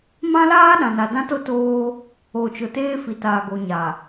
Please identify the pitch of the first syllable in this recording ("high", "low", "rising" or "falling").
high